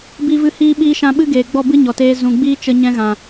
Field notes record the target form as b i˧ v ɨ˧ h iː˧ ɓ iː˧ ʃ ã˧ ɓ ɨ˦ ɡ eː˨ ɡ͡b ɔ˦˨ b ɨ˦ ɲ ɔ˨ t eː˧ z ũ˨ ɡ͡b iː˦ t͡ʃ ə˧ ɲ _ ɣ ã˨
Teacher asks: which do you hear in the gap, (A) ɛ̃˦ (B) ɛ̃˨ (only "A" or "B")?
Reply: A